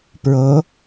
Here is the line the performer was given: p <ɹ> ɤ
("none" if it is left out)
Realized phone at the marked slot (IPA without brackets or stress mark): ɹ